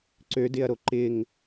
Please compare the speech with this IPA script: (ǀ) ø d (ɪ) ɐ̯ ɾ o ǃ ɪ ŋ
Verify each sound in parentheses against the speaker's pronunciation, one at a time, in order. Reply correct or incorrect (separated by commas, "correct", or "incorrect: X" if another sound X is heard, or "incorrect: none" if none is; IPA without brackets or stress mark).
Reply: correct, correct